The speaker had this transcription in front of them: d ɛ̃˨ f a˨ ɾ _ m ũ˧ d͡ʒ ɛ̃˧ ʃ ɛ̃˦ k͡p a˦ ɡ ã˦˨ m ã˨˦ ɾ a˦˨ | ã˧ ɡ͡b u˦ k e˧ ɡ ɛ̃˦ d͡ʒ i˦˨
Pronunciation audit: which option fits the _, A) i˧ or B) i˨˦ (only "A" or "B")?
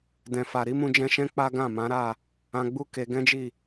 B